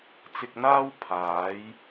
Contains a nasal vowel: no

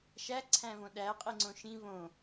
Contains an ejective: yes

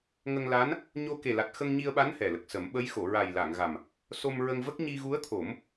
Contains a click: no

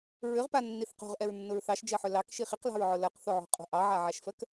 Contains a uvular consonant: yes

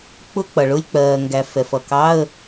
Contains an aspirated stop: no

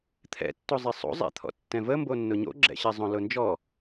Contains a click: yes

